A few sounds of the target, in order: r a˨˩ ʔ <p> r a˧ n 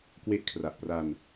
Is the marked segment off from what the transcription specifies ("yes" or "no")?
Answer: no